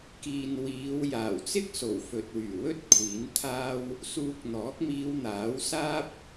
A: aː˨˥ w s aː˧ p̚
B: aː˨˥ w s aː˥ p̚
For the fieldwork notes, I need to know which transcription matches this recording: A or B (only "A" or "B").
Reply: B